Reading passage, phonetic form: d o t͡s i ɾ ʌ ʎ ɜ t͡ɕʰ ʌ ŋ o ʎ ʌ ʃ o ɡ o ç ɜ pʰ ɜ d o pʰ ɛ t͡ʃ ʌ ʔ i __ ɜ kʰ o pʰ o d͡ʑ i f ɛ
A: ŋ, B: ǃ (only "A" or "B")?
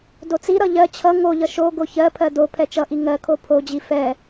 A